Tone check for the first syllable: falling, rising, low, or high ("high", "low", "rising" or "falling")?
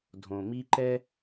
low